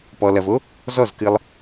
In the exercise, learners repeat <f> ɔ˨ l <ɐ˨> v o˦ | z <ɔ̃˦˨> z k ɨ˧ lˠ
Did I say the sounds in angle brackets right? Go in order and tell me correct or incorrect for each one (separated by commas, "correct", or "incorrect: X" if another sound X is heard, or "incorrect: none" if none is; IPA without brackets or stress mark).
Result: incorrect: p, correct, incorrect: ɔ˦˨